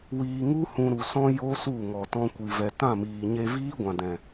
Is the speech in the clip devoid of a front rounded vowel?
yes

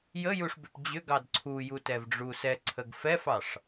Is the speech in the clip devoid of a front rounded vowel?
no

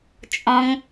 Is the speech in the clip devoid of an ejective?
no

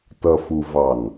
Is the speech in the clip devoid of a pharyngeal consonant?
yes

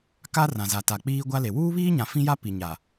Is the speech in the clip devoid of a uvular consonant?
yes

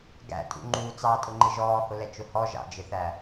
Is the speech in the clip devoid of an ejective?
no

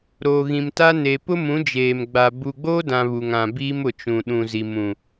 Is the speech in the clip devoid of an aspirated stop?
yes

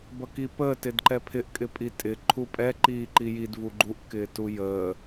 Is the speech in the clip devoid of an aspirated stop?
no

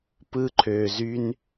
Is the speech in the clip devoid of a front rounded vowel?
no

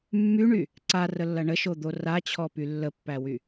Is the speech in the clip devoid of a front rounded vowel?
no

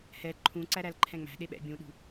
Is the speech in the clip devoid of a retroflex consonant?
yes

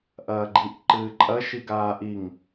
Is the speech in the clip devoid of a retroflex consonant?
yes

